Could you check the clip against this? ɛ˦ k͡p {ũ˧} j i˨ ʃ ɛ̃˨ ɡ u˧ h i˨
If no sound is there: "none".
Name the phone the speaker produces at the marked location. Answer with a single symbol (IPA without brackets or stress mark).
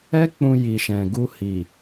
ũ˧